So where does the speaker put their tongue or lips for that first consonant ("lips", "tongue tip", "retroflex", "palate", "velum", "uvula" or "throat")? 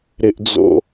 tongue tip